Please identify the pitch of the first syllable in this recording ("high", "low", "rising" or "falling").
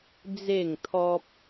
falling